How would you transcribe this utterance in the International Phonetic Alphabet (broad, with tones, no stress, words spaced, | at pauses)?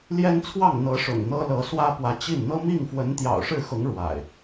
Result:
ljɛ˦nt͡sʰwɑ˥˨ŋ n̪ɤ˨˦ ʂʊ̰˨˩ŋn̪ɤ˦lɤ˨˦ swä˦pwä˨˦t͡ɕi˥˨n n̪ɤ˦mi˥˨ŋ fwə˨˦nt̪jɑ̰˨˩ʊ̯ʂɻ̩˥˨xʊ˨˦ŋ ɻwa̰˨˩ɪ̯